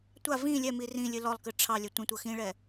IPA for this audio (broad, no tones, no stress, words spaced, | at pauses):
tʷa vĩ lʲɛmi rĩ lʲɨlɔlˠkɨ ʈ͡ʂʰɑlʲɛ tʷĩtʷɤ xĩɭɛ